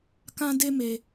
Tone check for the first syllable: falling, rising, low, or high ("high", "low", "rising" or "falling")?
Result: high